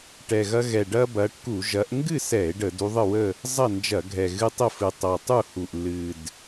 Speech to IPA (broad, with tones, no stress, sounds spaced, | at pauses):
ʈ ɛ˨˩ ɣ ɐ˦ ɣ ɛ˨˩ ɖ ɐ˦ b ɐ˨˦ ʈ k u˧˩˧ ʒ ɐ˨˦ ʔ ŋ ɡ ɨ˥˨ s ɛ˧˩˧ e̯ ɖ ə˧˩˧ d u˨˦ ðˤ ə˥˨ w ə˥˨ | zˤ ɐ˥˨ n d͡ʒ ɐ˧˩˧ ɡʱ ɛ˨˩ ɣ ɨ˦ tˤ ə˥˨ f ɨ˨˩ tˤ ɐ˨˩ tˤ u˥˨ h u˨˩ ʔ l ɨ˨˩ d